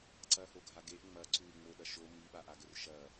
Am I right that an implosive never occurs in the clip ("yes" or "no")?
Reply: no